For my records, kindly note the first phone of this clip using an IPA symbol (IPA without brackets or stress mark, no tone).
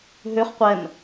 ɦ